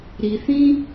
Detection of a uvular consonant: absent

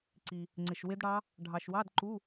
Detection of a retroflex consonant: present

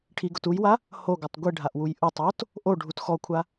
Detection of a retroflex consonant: present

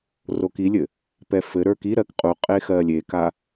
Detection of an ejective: present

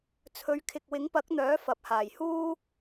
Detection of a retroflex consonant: absent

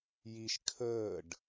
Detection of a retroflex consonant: present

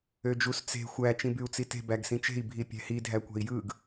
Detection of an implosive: absent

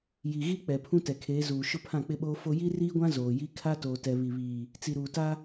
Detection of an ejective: absent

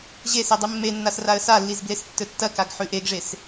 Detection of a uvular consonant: absent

